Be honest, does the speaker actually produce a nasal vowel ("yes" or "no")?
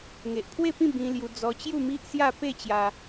yes